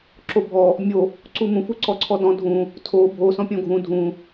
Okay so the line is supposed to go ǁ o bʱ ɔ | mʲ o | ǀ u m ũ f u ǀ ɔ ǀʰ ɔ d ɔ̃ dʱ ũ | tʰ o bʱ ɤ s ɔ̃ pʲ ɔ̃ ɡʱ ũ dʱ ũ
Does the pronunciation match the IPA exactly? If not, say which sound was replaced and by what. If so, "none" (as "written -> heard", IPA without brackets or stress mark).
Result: ɤ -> o